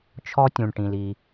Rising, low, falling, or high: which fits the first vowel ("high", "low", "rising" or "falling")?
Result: high